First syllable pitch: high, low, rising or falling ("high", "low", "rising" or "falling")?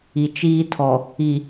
low